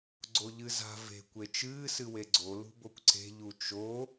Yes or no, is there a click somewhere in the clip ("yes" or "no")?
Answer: yes